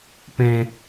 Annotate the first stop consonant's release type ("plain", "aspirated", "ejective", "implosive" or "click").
plain